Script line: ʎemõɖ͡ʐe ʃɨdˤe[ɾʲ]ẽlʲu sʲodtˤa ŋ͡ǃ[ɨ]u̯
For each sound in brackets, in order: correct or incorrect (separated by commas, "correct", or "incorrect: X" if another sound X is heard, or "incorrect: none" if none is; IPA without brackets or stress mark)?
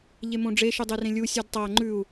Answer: incorrect: r, incorrect: ʉ